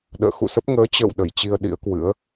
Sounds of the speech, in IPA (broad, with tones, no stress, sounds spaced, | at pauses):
ɗ ə̰ː˧˨ x ṵ˧˨ s ə˦˥ p̚ ŋ əː˨˦ t͡ɕ ə̰ː˧˨ w ɗ ə˧˩ j t͡ɕ i˧ ə̯ ɗ ḭ˧˥ ə̯ k w ɨ̰˧˥ ə̯